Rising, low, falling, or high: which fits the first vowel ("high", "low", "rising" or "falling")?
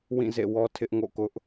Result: falling